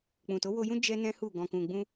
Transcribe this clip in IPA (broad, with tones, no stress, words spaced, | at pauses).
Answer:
k͡pũ˨to˨˦wo˧jũ˦ d͡ʒɛ˦nɛ̃˦hu˦˨ ɡɔ̃˨kũ˨ɡ͡bũ˧